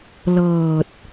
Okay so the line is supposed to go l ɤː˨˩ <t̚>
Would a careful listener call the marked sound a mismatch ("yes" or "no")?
no